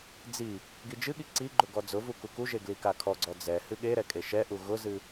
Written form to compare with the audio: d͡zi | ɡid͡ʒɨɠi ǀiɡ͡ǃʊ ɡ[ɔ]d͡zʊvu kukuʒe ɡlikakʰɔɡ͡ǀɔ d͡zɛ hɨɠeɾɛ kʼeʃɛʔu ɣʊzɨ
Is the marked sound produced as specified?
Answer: yes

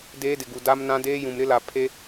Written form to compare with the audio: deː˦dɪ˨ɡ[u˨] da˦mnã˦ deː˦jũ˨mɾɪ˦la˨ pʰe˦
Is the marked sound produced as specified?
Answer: yes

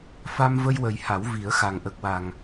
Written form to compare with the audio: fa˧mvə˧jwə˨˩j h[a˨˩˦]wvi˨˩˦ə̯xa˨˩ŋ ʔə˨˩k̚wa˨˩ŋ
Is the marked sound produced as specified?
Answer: yes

